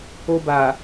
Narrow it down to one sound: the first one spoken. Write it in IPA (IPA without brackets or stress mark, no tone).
o